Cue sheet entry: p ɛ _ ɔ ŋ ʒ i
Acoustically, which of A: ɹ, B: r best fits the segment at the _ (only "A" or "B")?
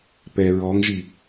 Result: A